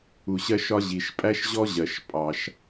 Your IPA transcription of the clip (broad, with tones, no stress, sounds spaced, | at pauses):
u˩ ɕ ɜ˥ ʃ ɒ˥ ʑ i˩ ʃ pʼ æ˥ ʃ ʑ ɔ˥ ʑ ɜ˩ ʃ pʼ ɑ˩ ʃ